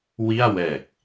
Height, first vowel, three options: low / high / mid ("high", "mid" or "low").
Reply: high